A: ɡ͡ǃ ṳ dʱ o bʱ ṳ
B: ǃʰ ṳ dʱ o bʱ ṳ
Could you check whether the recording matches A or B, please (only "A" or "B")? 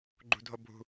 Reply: A